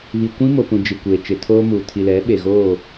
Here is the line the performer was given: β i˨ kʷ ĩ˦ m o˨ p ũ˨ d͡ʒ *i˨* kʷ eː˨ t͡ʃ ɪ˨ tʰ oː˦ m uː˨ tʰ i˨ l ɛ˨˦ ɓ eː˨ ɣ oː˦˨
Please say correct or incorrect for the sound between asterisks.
correct